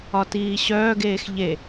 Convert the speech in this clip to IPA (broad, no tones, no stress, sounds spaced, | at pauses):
ɒ t iː ɕ œː ɡ eː x ʎ e